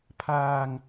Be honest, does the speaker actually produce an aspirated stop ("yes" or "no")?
yes